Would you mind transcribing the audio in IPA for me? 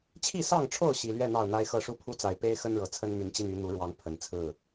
t͡ɕʰ i˥˨ s ɑ˥˨ ŋ ʈ͡ʂʰ o˥˨ ʊ̯ ɕ i˨˩ l ɥ ɛ˥˨ n̪ ɑ˥˨ ʊ̯ n̪ a˦ ɪ̯ x ɤ˥˨ ʂ u˥˨ pʰ u˦ t͡s a˨˩ ɪ̯ p e˦ ɪ̯ x ə˦ n ɻ ɤ˨˩ t͡sʰ ə˦ n m y˨˦ n t͡ɕ i˧ n y˨˦ n̪ u˨˦ ɻ w ɑ˨˦ ŋ pʰ ə˨˩ n t͡sʰ ɹ̩˥˨

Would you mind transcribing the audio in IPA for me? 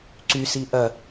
ǀ y s i ʔ ɐ

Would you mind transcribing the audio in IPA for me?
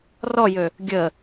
r ɔ j ø | ɡʲ ə

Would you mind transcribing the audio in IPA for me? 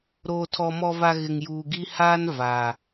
ɾ oː˨ tʰ ɔ˨ m ɔ˨ v a˨ ɣ ɪ˨ ŋ j uː˨ ɡ i˦ h aː˦ n v a˨

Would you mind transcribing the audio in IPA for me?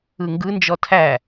ɯ ŋ ɡ ɯ n d͡ʒ ɔ tʰ æ

